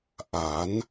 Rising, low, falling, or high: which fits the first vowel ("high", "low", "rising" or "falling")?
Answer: rising